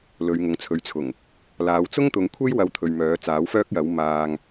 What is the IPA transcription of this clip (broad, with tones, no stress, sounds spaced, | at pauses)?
l ɵ˨˧ ɥ ŋ ʊ˨ ŋ t͡sʰ ɵ˨˧ ɥ t͡sʰ ʊ˨˩ ŋ | l aː˨˧ w t͡s ʊ˥ ŋ t̪ ʊ˨˧ ŋ kʷʰ e˥ j w ɐ˧ w t̪ʰ ɵ˨ ɥ m œː˨˥ t͡s aː˨˥ w f œː˥ k̚ j ɐ˨˥ w m aː˧ ŋ